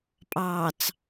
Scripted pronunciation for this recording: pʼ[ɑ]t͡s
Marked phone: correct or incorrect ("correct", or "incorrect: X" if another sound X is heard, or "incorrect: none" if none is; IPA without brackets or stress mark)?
correct